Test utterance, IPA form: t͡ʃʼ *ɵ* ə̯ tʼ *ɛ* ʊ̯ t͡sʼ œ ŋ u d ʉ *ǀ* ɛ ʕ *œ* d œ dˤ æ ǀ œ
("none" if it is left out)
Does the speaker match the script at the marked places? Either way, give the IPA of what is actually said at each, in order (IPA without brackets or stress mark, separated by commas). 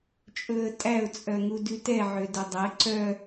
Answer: ɵ, æ, t, ø